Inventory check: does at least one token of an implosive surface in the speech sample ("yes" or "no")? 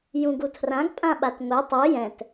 yes